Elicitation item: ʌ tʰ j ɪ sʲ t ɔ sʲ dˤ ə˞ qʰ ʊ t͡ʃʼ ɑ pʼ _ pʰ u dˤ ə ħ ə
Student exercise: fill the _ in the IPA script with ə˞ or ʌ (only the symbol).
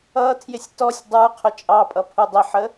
ʌ